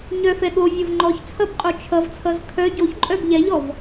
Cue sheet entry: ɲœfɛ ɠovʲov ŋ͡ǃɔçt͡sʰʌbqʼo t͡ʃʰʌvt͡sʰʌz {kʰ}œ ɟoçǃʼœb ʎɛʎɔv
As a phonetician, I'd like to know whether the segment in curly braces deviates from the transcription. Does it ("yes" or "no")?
no